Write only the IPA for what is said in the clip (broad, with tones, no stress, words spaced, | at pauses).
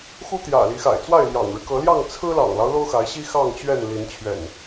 xu˦t̪jä̰˨˩ li˨˦xa̰˨˩ɪ̯ t͡swa˥˨ɪ̯ljɑ̰˨˩ŋɻɻ̩˦ kɤ˨˦ljɑ˥˨ŋ t͡sʰɹ̩˦lɑ̰˨˩ŋlɑ˦ʊ̯ lo˦ʊ̯xa˨˦ɪ̯ɕi˦ xɑ˥˨ŋt͡ɕɥɛ˥˨n li˨˦nt͡ɕʰɥɛ̰˨˩n